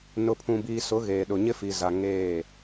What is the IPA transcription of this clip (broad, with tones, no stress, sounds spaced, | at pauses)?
n ʊ˨ pʰ ũ˨ b iː˨ s ʊ˨˦ ɣ eː˨ ɗ ʊ˨ ɲ ɪ˦ f i˨ z a˨ ŋ eː˦˨